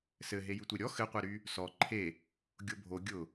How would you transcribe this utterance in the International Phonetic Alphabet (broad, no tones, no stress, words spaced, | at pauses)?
sɘɦe jytʷeɾʲɔ xɘqʷeɾy | sɔ ǃʰe | ɡʲobʱo ɡʲʊ